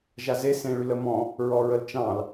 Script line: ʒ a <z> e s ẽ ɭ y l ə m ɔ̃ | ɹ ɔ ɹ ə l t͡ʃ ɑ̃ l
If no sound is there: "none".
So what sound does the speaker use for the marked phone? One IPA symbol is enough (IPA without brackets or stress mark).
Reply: z